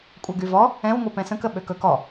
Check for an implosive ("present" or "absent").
present